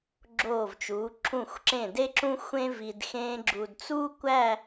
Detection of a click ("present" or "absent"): present